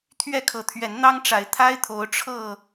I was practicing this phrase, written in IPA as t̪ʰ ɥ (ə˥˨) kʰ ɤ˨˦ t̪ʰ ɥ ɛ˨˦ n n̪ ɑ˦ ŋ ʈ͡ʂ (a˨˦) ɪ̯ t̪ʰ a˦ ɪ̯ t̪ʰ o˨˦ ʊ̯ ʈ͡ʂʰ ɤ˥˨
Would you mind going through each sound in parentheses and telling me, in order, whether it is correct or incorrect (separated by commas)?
incorrect, correct